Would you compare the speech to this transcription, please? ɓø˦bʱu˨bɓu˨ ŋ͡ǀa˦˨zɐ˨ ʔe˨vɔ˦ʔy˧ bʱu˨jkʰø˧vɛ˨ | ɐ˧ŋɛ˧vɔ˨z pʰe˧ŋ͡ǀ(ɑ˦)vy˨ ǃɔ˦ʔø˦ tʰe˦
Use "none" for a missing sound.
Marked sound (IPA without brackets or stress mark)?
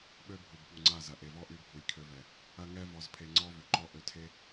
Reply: ɔ˦